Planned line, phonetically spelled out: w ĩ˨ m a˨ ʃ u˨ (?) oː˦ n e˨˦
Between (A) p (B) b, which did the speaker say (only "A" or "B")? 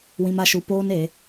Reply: A